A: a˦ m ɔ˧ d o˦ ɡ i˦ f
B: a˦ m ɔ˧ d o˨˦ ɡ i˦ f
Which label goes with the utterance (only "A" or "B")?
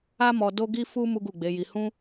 A